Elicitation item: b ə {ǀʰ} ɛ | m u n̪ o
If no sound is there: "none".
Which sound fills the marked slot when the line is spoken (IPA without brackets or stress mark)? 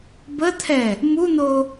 t̪ʰ